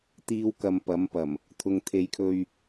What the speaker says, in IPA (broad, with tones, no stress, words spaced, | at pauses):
t̪iː˥wkɐ˧mpɐ˨˥mpɐ˨˩m | t̪ʰʊ˨ŋt̪ʰe˨˧jkʰɵ˧ɥ